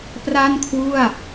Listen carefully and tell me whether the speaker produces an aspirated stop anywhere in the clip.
yes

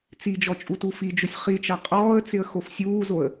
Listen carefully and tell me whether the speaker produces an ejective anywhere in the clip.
yes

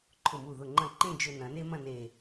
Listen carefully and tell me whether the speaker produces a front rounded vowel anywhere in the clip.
no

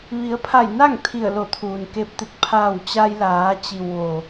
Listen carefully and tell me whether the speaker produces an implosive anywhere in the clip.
no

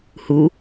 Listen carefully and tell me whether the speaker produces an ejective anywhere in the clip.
no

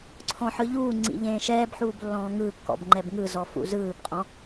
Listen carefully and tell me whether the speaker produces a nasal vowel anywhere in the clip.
yes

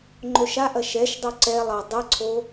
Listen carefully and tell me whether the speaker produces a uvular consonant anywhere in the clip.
no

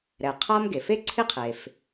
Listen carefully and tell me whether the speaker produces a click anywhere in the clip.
yes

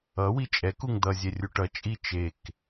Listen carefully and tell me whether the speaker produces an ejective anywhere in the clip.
yes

